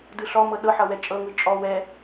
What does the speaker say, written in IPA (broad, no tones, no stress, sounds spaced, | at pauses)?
d ɯ ɬ ɔ m ɤ ɗ ɤ ħ ʌ w ɛ t͡ʃʼ ɤ ŋ ɯ t͡ʃʼ ɔ w ɛ